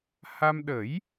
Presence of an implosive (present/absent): present